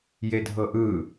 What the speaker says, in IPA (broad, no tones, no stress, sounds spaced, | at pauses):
j e dʱ ɤ ʔ ɯ